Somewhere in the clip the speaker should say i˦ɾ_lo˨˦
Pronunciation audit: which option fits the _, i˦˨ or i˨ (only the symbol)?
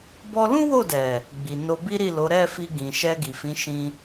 i˦˨